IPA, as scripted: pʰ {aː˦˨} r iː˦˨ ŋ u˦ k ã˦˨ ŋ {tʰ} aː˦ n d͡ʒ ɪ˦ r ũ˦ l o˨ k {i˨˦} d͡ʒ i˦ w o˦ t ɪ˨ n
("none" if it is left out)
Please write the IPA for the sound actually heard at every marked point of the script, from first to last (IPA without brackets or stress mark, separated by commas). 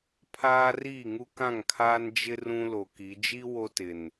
aː˦, kʰ, i˨˦